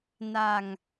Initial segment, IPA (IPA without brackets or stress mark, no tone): n